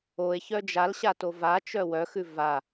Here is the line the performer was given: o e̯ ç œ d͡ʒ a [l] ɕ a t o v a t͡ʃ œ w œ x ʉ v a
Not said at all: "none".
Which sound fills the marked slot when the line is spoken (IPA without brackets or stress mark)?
l